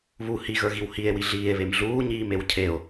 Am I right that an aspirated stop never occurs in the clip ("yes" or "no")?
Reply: no